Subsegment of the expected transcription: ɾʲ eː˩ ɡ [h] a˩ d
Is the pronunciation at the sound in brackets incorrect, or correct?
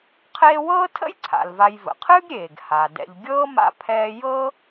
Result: correct